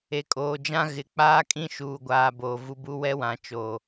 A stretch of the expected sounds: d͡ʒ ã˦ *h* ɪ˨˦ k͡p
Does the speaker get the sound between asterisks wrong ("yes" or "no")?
yes